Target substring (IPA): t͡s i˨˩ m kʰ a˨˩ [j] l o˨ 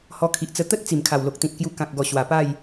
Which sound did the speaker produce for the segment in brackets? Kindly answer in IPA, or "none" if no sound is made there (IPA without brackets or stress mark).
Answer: w